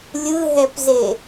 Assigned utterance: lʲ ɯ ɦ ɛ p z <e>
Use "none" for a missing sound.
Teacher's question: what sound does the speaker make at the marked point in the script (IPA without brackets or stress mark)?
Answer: e